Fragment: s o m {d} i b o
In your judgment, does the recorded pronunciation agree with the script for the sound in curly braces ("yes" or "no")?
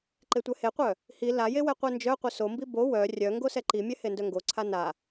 no